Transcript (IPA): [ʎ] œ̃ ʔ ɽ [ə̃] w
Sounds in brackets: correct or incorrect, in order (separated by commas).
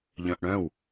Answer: correct, incorrect